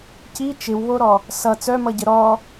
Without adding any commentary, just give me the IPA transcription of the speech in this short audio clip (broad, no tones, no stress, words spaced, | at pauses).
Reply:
ci t͡ʃɪwβoɾɔ | sʌ t͡sœmʌɟə ɾɔ